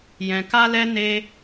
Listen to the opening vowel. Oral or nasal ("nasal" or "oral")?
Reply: nasal